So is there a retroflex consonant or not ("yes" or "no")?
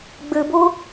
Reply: no